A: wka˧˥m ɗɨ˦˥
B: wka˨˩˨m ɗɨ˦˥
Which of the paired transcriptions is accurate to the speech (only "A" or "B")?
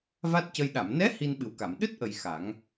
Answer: B